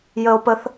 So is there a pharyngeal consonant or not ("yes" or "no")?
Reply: no